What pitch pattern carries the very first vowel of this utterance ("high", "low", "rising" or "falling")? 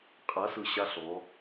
rising